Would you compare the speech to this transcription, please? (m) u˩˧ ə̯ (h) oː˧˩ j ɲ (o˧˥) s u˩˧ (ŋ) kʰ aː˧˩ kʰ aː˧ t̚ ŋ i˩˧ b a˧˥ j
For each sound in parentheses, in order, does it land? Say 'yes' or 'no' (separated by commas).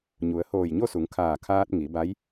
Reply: no, yes, no, yes